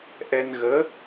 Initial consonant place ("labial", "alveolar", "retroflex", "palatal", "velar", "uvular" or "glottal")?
glottal